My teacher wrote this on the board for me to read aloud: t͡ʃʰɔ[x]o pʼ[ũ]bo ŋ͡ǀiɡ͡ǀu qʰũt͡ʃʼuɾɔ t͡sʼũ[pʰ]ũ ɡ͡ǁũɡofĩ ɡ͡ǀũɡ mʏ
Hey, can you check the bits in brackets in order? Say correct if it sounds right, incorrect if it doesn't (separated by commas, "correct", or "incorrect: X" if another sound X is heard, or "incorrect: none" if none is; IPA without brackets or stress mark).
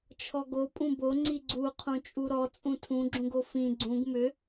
incorrect: ɡ, correct, incorrect: tʰ